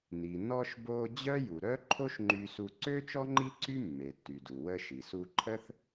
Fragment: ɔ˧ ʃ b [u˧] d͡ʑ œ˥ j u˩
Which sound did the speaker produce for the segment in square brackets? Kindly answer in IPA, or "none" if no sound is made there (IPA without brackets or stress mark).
o˧